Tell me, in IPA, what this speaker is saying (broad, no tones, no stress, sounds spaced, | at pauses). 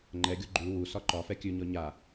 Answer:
ŋ͡ǃ ɛ ɡʲ o ɡ͡ǃ ʉ w u s ɒ ǃ ɒ f ɛ kʲ ʉ ɲ ɔ ɲ a